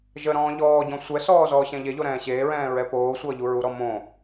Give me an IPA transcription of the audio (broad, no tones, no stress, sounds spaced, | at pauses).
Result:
ʒ ə ɾ ɔ̃ː ʎ ɔː ɟ ɔ̃ sʷ ɛ s ɔː z ɔː ɕ ɛ̃ ʎ e ʎ o ɾ ɛ̃ː ɕ eː ɹ ɛ̃ː ɹ ɛ p oː sʷ ʌː ʎ u ɹ u ɾ ɔ m õ